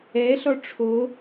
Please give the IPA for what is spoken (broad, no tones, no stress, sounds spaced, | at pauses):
ɛ ɬ ɔ ʈ͡ʂʰ o